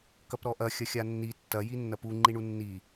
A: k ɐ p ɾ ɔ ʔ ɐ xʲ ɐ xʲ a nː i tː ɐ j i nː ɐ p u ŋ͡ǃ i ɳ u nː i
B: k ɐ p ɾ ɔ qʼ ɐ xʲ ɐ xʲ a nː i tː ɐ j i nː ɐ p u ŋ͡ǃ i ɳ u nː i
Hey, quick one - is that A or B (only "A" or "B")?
A